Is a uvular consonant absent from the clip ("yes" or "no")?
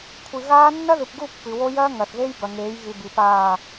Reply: yes